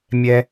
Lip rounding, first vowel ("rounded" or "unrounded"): unrounded